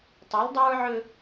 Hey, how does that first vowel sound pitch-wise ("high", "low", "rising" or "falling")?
rising